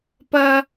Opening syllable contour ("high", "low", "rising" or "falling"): high